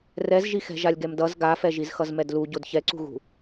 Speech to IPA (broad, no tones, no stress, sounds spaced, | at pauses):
r ɛ z ʒ i x ɛ̤ ʒ a lʲ ɡ ɛ m d ʌ z ɡ a f ɛ ʒ i z x ʌ z m ɛ d l u ɟ o d ç ɛ ǀ ṳ ɣ ṳ